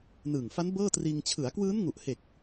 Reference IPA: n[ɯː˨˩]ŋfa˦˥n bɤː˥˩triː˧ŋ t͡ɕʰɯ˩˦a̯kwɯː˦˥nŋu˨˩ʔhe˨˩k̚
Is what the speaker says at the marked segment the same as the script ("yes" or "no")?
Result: yes